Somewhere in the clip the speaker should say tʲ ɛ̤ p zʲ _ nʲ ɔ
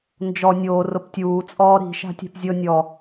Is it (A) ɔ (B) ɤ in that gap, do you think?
B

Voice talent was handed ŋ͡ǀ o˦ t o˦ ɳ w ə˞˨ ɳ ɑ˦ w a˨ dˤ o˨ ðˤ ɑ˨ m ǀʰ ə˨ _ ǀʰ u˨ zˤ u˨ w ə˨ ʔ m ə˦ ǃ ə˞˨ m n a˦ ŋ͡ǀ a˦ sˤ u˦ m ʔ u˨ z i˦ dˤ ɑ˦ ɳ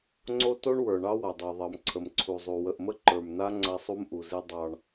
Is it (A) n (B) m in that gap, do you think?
B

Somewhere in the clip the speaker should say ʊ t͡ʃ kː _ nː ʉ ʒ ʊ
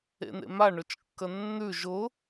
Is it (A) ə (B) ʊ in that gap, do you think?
A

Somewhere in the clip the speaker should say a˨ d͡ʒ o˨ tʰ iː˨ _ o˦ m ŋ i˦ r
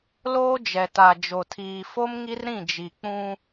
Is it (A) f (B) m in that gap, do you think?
A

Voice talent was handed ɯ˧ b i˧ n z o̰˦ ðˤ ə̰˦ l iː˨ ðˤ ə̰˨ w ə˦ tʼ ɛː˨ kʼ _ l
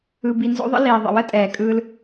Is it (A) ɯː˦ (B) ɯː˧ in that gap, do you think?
A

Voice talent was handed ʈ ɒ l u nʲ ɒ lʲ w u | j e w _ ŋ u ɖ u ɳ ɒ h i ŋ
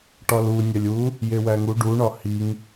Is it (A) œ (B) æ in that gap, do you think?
B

